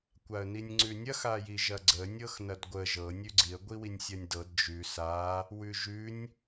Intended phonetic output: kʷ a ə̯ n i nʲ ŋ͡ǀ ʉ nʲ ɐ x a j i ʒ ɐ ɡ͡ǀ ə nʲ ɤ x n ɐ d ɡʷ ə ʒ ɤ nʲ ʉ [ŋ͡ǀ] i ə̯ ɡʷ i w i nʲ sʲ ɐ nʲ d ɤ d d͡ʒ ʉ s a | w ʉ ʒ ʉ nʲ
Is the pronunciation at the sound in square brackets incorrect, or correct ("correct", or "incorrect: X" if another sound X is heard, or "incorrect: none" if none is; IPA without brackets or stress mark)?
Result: incorrect: ɡ͡ǀ